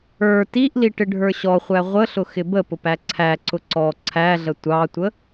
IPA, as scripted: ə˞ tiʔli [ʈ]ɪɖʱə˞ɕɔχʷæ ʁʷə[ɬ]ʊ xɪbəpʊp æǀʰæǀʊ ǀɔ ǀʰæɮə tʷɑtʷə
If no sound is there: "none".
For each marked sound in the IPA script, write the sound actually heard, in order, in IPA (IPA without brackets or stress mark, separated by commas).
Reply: ʈ, ɬ